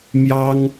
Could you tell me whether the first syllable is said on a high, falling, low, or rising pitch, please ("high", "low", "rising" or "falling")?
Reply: high